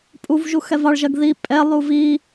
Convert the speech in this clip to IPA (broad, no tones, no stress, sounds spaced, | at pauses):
pʼ u v ʒ u x ɛ v ɑ ɭ ʒ ɜ ɡ ð i pʼ ɛ lˠ u v i